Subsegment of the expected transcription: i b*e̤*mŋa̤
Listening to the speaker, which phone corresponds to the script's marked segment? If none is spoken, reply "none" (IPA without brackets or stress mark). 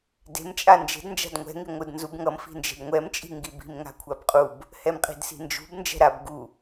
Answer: i̤